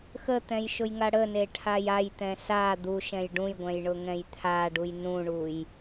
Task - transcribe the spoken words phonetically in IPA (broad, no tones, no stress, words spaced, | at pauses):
xət̪ɛ̃jʃʊjŋa ɽəneʈʰaj ajt̪ɛ̃ sa d̪uʃɛ̃j ɖũjɡʷɛ̃jɳʊŋɛ̃j t̪ʰaɖuj nũɳuj